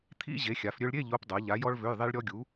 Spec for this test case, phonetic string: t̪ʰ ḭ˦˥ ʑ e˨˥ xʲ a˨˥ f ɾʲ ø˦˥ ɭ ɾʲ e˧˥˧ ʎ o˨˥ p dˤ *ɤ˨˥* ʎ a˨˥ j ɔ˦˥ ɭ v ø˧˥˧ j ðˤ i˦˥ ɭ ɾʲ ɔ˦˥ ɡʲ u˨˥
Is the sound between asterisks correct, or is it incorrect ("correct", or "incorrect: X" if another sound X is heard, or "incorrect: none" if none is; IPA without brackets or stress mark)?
correct